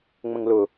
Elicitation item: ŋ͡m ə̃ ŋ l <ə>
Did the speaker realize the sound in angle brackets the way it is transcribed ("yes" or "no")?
no